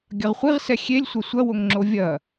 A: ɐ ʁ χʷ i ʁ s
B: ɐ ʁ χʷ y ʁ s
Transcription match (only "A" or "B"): A